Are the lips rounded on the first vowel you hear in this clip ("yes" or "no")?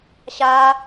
no